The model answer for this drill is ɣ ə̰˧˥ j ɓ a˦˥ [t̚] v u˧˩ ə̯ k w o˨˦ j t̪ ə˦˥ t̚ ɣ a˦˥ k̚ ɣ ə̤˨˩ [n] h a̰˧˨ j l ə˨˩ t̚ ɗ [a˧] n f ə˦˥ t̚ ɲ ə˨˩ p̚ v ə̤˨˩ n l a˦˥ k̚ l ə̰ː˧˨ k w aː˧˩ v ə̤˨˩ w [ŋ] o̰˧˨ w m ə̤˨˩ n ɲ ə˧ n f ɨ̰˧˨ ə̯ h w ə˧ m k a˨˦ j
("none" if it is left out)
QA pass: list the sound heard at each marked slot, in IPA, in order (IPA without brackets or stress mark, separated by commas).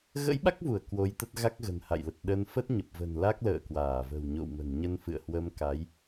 k̚, n, ə˧, ɲ